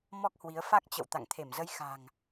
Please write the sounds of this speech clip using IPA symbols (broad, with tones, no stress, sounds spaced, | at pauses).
m ɔ˦˥ k̚ h w i˨˦ ə̯ f a˦˥ k̚ t͡ɕ ə̰˧˨ w t̪ a̰˧˨ ŋ t̪ʰ e˧˩ m z ə˨˦ j x a̤˨˩ ŋ